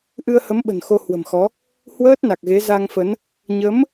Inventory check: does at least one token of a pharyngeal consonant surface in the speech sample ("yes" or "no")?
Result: no